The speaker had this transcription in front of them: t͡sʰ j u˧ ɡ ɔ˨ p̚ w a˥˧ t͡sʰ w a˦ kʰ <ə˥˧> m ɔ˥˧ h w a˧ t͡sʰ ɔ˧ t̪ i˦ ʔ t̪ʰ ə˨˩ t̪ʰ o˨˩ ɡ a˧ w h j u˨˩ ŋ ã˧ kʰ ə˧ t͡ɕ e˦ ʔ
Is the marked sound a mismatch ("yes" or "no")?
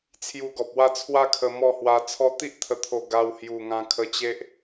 yes